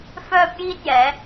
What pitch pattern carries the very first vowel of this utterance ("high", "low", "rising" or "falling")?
high